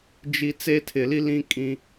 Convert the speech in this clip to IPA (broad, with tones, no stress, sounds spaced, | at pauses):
d͡ʒ i˨ t͡s e˦ tʰ ɪ˨ l i˦ l ĩ˦ kʼ ĩ˦